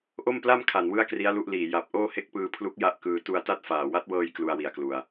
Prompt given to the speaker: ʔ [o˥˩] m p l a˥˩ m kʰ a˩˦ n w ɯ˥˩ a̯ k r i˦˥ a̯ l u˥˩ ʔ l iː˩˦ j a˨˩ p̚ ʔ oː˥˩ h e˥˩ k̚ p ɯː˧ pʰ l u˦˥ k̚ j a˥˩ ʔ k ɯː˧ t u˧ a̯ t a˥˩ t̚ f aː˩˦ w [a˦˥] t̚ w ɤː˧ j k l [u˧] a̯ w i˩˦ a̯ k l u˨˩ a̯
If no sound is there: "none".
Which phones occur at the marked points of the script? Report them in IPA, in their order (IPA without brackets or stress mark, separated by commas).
o˥˩, a˦˥, u˧